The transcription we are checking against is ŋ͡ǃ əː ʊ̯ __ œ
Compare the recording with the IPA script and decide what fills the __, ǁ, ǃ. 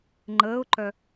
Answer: ǃ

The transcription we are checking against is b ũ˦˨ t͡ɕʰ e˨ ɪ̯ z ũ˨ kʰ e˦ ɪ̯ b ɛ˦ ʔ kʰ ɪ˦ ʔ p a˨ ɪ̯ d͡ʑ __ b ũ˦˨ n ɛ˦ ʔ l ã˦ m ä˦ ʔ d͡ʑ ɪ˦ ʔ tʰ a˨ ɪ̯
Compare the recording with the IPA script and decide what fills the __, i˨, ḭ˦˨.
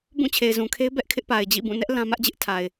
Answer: ḭ˦˨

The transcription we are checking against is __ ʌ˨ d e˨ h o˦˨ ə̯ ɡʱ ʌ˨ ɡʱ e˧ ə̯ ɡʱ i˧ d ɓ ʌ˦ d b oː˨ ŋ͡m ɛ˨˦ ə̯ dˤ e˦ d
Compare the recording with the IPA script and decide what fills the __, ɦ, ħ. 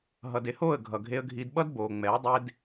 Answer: ɦ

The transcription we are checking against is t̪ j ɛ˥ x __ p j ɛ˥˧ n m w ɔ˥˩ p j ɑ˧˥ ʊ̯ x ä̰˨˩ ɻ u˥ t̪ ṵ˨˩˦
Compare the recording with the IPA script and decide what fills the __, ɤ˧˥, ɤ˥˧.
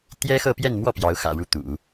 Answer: ɤ˥˧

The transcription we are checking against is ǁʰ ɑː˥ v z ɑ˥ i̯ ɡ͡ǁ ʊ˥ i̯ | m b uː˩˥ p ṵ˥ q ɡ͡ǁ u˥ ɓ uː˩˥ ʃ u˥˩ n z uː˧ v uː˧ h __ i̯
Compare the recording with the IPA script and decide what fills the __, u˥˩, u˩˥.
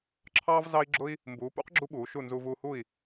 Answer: u˥˩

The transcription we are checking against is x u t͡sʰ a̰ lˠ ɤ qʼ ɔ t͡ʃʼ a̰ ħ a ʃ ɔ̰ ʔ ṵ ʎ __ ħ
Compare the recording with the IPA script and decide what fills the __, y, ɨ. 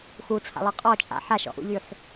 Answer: y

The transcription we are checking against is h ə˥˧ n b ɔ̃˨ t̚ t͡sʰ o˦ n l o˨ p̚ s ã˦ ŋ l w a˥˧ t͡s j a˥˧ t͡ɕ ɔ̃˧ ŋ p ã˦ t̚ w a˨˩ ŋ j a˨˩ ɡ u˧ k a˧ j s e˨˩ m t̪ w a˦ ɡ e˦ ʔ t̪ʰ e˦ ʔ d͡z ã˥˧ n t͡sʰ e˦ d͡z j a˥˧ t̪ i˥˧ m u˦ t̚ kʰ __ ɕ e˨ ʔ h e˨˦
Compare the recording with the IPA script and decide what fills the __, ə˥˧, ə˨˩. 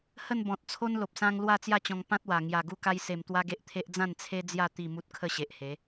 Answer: ə˥˧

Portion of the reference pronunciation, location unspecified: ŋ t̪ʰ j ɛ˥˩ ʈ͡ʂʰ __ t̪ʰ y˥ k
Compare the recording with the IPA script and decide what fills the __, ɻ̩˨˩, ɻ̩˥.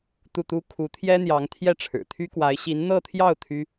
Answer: ɻ̩˨˩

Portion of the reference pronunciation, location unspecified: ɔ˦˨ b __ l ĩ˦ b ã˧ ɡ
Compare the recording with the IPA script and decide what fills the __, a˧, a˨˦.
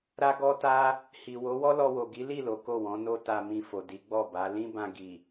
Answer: a˨˦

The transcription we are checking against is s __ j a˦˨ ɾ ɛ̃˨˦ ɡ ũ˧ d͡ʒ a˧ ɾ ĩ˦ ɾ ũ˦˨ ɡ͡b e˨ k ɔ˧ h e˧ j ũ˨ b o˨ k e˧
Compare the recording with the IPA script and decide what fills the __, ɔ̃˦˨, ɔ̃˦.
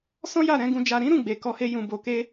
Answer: ɔ̃˦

